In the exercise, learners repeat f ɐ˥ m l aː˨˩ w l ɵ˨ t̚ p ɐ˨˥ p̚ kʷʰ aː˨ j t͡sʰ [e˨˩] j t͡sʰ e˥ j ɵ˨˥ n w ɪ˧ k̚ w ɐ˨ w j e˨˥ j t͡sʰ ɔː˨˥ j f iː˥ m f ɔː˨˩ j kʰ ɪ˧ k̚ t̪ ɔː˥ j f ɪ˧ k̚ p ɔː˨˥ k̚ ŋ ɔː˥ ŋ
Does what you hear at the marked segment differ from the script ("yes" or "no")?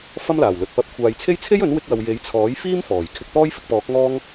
yes